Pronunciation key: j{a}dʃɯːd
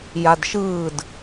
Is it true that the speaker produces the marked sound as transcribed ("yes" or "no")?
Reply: yes